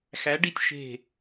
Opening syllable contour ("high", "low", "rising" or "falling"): rising